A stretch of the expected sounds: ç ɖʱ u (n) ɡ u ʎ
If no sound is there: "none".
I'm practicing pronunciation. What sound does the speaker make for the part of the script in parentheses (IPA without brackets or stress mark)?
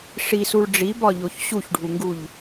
ŋ